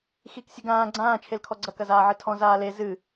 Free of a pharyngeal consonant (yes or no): no